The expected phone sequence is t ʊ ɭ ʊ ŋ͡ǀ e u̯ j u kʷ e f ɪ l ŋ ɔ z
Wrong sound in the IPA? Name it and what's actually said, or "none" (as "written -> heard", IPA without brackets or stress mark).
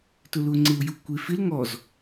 ɭ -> l